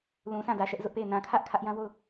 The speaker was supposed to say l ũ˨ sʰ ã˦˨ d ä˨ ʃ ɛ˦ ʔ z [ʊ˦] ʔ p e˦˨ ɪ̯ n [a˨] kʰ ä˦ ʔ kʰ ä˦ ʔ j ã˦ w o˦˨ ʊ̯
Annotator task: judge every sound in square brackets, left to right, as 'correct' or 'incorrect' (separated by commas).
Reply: correct, incorrect